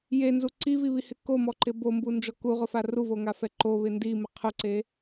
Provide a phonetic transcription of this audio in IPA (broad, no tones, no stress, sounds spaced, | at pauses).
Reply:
j e n z u ǀ i v i β i h ɪ k o m ɔ ǃ ɪ b o m b u n d͡ʒ ɔ k u ʁ ʊ f a r u v o ŋ a f ɛ ǃ o β ɪ n d i m ɪ qʰ ʊ ǀ e